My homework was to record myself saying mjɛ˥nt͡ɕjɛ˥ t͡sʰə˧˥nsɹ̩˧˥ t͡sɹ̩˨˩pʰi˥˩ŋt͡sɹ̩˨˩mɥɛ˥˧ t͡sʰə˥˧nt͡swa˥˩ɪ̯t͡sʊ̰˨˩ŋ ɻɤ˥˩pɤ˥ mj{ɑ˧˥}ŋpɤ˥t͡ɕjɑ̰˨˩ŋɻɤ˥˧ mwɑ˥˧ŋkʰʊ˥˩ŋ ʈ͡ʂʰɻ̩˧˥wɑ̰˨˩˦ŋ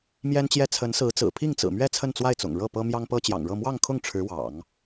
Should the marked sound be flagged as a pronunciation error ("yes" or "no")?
yes